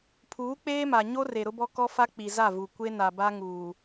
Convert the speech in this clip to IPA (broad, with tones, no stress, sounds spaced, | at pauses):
pʰ uː˨˦ k͡p eː˦ m a˨ ɲ o˦ r e˨ ɾ ʊ˦ b ɔ˦ k ɔ˦ f a˦ k͡p i˨ z a˦˨ v u˨ kʷ e˦ n a˨ b a˦ ŋ uː˨